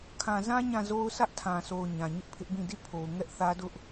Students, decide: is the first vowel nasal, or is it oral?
nasal